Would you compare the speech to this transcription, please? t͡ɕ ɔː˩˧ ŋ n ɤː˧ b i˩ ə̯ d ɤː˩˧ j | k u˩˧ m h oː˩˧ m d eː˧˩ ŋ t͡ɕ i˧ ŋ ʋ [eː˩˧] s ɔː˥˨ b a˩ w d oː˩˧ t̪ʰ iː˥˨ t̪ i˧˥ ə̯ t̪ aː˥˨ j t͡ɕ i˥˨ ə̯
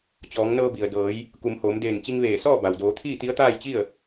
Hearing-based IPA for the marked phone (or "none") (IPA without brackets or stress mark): eː˧˩